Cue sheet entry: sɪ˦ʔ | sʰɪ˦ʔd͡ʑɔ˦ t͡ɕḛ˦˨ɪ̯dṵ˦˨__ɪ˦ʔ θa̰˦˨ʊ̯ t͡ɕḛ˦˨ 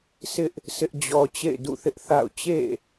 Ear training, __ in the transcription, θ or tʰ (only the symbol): θ